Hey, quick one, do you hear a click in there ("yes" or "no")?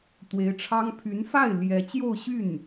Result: no